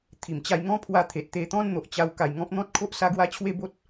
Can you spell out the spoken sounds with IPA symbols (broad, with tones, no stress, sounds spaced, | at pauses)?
t̪ʰ i˨˩ m t͡ɕ a˧ j ŋ ɔ̃˦ pʰ w a˧ t̪ʰ e˨ t̚ t̪ e˧ t̪ ɔ̃˦ n n̪ o˨ ʔ t͡ɕ a˧ w k a˧ j ŋ ɔ̃˦ p̚ n̪ ɔ̃˦ t̚ kʰ o˦ ʔ s a˧ ɡ w a˧ t͡ɕʰ w e˥˧ b o˦ t̚